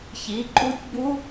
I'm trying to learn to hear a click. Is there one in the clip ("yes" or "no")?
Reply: yes